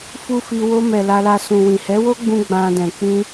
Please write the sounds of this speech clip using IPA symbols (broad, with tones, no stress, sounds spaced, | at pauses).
f u˦ f i˧ w o˧ m ɛ˨ l a˧ l a˧ s ũ˨ w ĩ˨ h ɛ˨˦ w o˦ ɡ͡b ũ˧ ɡ͡b ã˧ d ɛ̃˨ k͡p ĩ˧